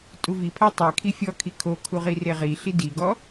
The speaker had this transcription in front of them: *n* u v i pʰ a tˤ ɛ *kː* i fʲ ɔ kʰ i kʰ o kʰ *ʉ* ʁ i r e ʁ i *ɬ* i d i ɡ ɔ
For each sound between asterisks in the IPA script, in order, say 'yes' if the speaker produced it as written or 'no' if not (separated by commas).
no, no, no, yes